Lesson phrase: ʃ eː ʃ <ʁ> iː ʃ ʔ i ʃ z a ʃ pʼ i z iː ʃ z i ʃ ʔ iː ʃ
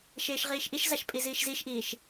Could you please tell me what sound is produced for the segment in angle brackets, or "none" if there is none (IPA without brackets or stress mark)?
ʁ